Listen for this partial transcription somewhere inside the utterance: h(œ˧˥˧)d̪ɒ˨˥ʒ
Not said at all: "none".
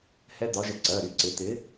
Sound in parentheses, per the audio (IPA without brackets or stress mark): ɛ˧˥˧